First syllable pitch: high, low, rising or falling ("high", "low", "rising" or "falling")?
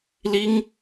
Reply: high